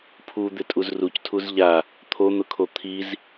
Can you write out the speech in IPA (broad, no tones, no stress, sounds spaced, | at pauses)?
pʰ u d̪ ɪ tʼ u z r u c tʰ u z ʎ a | t̪ʰ o n̪ ʊ kʰ o t̪ʰ i z